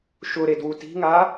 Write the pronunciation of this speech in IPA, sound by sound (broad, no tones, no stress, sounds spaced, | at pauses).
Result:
ʃ ʊ ɾ e d w u t i̤ ŋ a